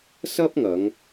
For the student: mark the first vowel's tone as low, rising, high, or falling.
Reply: high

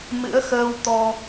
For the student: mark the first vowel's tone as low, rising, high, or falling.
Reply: rising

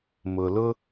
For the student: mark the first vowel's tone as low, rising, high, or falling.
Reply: low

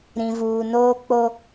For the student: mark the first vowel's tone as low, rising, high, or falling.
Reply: low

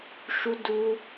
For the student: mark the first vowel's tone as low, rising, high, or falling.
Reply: high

